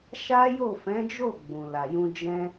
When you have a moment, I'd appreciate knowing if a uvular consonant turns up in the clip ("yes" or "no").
no